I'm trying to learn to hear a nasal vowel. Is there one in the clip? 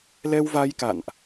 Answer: no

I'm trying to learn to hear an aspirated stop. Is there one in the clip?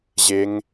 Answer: no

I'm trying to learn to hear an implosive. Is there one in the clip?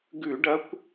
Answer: no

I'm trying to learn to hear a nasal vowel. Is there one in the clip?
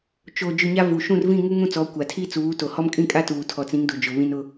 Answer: yes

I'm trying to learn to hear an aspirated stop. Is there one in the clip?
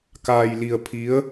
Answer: yes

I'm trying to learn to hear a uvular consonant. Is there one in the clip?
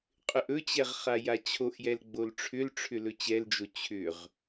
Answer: yes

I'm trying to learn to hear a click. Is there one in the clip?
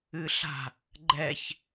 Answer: yes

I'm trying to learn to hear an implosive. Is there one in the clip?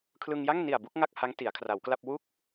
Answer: no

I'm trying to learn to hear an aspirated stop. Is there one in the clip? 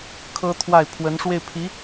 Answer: yes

